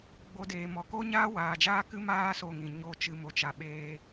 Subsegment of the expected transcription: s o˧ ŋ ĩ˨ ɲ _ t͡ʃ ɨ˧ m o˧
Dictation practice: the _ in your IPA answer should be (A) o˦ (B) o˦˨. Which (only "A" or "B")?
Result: B